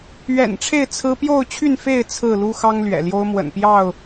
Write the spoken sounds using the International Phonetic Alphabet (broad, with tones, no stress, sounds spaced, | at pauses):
ɥ ɛ̰˨˩ n ʈ͡ʂʰ e˥˨ ɪ̯ t͡sʰ ɹ̩˦ p j o˥˨ ʊ̯ t͡ɕʰ y˥˨ n f e˥˨ ɪ̯ t͡sʰ ɹ̩˥˨ l u˦ x ɑ˦ ŋ l ɥ ɛ̰˨˩ l j o˦ ʊ̯ m w ə̰˨˩ n p j ɑ˥˨ ʊ̯